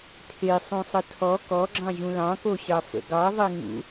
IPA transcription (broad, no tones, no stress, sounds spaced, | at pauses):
tʰ e sˤ ũ sˤ ə tʰ ɔ k ɔ ɡ͡ǁ ɑ̃ ʑ ũ l ɑ̃ k o ɕ ɑ f ə̰ ɡ ɑ ðˤ e ŋ ṵ